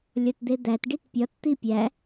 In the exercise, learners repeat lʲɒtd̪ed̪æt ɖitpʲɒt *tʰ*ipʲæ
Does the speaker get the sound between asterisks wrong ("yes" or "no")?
yes